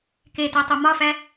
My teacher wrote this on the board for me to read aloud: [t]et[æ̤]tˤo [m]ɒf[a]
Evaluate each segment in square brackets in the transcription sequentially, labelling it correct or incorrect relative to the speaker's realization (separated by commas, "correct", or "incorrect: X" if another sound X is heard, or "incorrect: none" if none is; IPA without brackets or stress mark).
incorrect: k, incorrect: æ, correct, incorrect: æ